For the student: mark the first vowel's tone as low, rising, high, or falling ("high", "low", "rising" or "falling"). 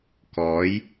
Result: rising